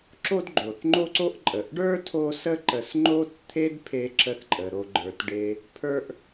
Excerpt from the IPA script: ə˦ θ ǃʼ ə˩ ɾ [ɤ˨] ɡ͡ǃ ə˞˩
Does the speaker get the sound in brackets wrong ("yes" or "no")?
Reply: yes